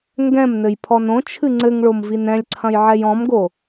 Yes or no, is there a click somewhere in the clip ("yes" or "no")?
yes